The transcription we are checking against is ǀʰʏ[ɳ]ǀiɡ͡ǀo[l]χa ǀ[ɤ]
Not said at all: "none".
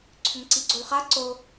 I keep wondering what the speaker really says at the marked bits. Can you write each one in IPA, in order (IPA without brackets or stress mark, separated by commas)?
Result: ŋ, l, o